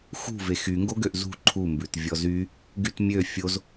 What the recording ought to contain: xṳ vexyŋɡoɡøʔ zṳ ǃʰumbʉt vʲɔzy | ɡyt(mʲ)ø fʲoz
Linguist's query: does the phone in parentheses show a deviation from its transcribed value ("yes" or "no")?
no